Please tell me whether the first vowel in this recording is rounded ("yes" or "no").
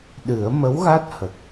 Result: no